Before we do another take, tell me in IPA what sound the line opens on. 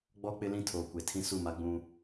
ɡ͡b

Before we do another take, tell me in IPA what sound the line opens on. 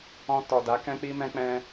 ɔ̃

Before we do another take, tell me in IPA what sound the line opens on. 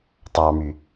tˤ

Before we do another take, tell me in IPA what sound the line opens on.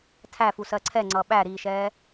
tʰ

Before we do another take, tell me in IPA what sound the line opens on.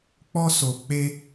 k͡p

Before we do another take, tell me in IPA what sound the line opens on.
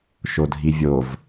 ʃ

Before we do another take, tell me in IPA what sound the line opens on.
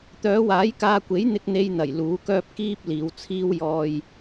t̪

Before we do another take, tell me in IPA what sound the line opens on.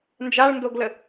n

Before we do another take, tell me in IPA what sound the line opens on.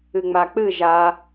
ɨ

